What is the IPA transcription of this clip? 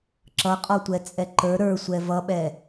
ǁʌqʼɔtʷɛ t͡sʼɛǃə˞ ɾə˞sʷɛ vʌɓɛ

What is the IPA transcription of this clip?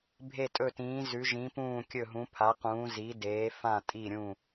bʱe˧˩tʼɵ˧˩tĩː˩˧ zʉ˩˧ʒĩ˩˧pũː˧˩ kʲɵ˧˩ɦũ˩˧pʰa˩˧qũː˩˧ zi˩˧deː˩˧fã˧˩ tʼi˧˩ɾʲũ˧˩

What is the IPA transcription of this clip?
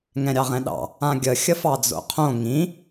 ŋɛ̃ɾʲɑʁɛ̃ɗɑ̰ | ãɡʲə xʲəfɑd͡zo̰qʰõ ŋĩ

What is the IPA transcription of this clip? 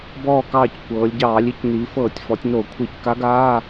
bɔː˧˩kɑː˧˩c kʷɤː˩˧lʲɟɑː˧˩˧lʲi˩˧c niː˩˧fɤː˧˩˧tʲ fɔ˩˧tʲno˧˩˧ kʷʰi˧˩˧cka˧˥ɡaː˧˥˧

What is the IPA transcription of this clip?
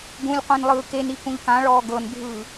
ɡũlʲqʷĩnlˠɯː kenikũʎ kãɭɔː ɡɤnbʱɯː

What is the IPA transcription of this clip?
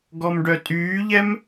ɡɔmɖœtʼyːʎɛm

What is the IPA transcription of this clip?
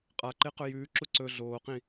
qʼaǃe qɵjʉːǁu ǀɵ ɮoːqĩ

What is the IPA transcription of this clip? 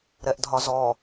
ɾɛʔdʱɒzɔ

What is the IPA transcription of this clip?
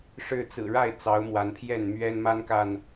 ʂɻ̩˥˨ t͡sɹ̩˨˩ɻa˥˨ɪ̯ t͡sɑ˨˦ʊ̯mwa˨˦npʰjɛ˥˨n mɥɛ˦nma˦nka˨n

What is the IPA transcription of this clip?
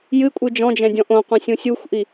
jɨ kʷʼɨd͡ʒɔ̃d͡ʒɛ̃ dʲɔ̃ʔõqʷɛ̃ sʲũsʲuxʷʔi

